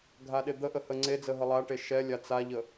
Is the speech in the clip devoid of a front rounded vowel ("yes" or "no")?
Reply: yes